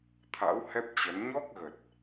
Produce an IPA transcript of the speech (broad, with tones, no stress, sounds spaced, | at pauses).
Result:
t̪ʰ a̰˧˥ w h ɛ˦˥ p̚ t͡ɕ ə˨˦ n ɲ ɔ˦˥ k̚ ɣ ə˨˩ t̚